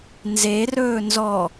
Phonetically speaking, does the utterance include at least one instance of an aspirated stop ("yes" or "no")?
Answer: no